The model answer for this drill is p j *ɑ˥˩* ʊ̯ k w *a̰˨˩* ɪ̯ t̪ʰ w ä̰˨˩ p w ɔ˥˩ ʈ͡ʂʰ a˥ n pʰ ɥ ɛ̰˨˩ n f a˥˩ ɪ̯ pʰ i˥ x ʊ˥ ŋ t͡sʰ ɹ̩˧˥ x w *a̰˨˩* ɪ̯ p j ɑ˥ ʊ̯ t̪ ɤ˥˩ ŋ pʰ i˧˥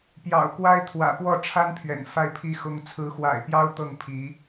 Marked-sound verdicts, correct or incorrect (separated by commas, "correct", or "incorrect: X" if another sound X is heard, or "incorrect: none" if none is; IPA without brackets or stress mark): incorrect: ɑ̰˨˩, incorrect: a˥, correct